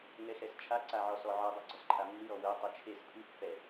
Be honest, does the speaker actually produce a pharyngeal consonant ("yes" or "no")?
yes